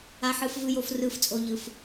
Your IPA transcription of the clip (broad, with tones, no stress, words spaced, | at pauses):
a˧ħɯ˧fvɯ˧jo˧f rɯː˧ft͡sʼo˧ʎɯ˩˧f